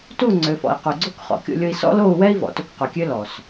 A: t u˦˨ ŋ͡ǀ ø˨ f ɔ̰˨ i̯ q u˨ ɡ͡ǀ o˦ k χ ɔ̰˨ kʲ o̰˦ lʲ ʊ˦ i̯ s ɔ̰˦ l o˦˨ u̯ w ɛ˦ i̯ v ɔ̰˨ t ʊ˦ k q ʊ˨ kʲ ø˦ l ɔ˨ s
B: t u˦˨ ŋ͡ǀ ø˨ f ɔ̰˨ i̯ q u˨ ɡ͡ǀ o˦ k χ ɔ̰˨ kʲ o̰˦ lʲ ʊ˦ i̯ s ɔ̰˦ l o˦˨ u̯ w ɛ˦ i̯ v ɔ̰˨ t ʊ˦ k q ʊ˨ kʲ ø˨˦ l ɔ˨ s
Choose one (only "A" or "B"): A